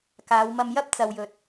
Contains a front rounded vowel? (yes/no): no